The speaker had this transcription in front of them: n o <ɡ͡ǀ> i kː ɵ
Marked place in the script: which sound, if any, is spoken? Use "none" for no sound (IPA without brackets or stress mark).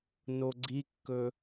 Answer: ɡ͡ǀ